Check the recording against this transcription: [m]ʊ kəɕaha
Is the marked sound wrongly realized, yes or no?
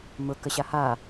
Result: no